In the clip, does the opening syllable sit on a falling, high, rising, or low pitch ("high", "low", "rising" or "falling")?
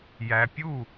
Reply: low